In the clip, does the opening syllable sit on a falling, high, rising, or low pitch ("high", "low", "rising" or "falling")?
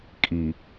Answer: low